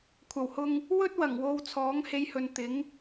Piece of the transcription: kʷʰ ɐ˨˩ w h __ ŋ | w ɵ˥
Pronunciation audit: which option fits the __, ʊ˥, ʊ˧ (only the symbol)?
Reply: ʊ˧